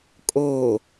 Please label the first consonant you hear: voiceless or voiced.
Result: voiceless